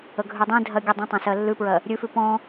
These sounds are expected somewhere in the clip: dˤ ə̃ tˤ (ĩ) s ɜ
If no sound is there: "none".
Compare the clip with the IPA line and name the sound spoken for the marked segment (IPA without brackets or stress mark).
ẽ